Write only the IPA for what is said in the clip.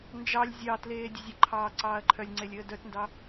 n d͡ʒ ɑ lʲ zʲ ɑ t l eː dʲ ə zʲ ə ǃʰ ɑː ǀ ɑː ɐ̯ ǃʰ œ lʲ ŋ͡ǀ e lʲ əː d œ t n d ɑ

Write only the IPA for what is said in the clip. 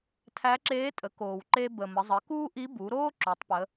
tʰ æ˧˥ ǁ eː˧˥ tʼ ə˩˧ k oː˩ w ǃ e˧ b ə˩ m ə˩˧ zˤ ə˩˧ k uː˥ ʔ i˧˥ b u˩˧ ɾ oː˥ ǁ o˩˧ tˤ p ə˩˧

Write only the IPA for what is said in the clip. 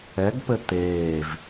ɛ ɡ p ɘ t̪ eː v

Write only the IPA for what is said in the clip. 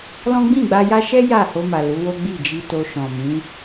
l ɔ̃˦ ɡ͡b ĩ˦˨ ɡ͡b a˧ j a˦ ʃ ɛ˦ j a˦˨ h o˧ m a˨ l u˨˦ w o˦ ɡ͡b i˦˨ d͡ʒ i˧ t o˧ ʃ ɔ̃˨ m ĩ˨˦

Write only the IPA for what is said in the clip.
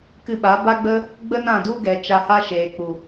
k ɨ˧ ɓ a˨˦ b a˦ ɡ͡b ə˦ | ɡ͡b ə˦ n ã˦˨ d u˦ ɡ ɛ˨ t͡ʃ a˧ h a˦ ʃ eː˨ k͡p u˨

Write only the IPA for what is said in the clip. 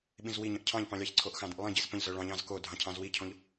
ɓ ĩ z w i ɲ ə̃ ʔ cʰ ɑ̃ ʎ p ɑ̃ lʲ ɑ ç ǀʰ o ʔ x ɑ̃ d ə̃ ʔ lˠ ĩ ɟ i z p ə̃ ʎ z œ ɭ ɑ̃ ʎ ɑ̃ z k o dʱ ɑ̃ cʰ ɑ̃ z w i cʰ õ ʎ

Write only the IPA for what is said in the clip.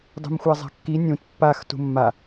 dˤ ṳ m xʷ a zˤ a̤ kː i nʲ ũ t pː a x t ṳ mː a

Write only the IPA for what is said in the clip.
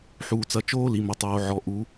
ħ uː˩ t͡s ɐ˩˧ t͡ʃ oː˧ l i˩ m ɐ˩ tˤ oː˩ ʕ ɔ˩ ʔ u˩˧

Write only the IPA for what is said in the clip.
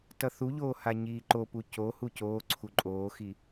t ʌ θ u ʎ oː h a ɲ iː ǃ o p u c o h u c oː ǀʰ u ǃʼ oː x i

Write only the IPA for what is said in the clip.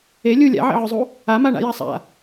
e lʲ u lʲ a̰ ʕ ḛ ʕ ʏ zˤ u | a m a ɳ a̰ j a sˤ a̰

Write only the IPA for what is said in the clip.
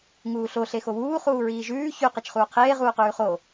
ŋ uː ɬ o ɬ e x o w uː χ uː ɹ iː ʒ ʉː ç ʉ q e t͡ʃ χ uː qʰ eː ʁ uː q ʉː χ o

